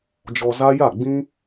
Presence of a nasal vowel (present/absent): present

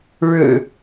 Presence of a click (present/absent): absent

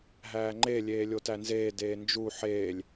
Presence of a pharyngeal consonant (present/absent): present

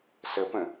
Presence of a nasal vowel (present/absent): present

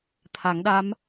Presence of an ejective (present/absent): absent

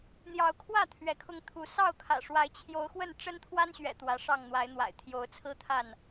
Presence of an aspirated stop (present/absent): present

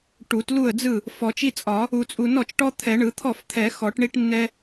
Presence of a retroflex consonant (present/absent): present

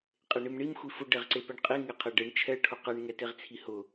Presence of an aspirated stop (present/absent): present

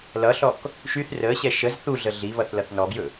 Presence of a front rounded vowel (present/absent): present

